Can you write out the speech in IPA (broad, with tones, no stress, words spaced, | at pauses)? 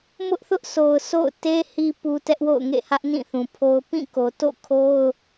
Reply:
mʊ˦ʔθʊ˦ʔsʰo˨ʊ̯ sʰo̰˦˨ʊ̯te˦ hi˨ pu˨ tɛ˦ʔwo̰˦˨ʊ̯ŋḛ˦˨hä˦ʔ nĩ˦˨θũ˨pʰo˦ʊ̯ pĩ˦˨ko˨ to̰˦˨kʰo˦ʊ̯